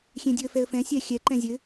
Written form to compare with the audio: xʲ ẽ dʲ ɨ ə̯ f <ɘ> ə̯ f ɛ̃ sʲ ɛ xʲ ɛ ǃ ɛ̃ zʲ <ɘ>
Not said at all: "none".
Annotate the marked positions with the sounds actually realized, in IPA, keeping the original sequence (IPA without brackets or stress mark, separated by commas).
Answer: ɛ, ɘ